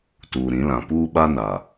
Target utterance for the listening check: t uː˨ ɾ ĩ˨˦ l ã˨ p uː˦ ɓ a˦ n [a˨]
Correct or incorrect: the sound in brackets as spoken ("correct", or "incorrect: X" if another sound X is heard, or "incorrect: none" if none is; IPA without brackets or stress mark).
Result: correct